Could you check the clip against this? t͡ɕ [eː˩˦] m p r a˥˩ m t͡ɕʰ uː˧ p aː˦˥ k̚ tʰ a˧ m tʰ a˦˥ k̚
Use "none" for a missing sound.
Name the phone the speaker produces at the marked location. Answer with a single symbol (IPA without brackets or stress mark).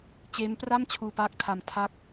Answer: eː˦˥